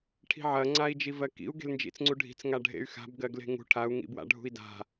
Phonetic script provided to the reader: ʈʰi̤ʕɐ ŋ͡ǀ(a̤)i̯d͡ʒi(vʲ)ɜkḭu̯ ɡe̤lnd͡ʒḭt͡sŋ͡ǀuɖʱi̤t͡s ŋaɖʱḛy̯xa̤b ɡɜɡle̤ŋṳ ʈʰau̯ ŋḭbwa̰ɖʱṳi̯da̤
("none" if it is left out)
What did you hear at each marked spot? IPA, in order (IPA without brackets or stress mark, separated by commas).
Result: a, v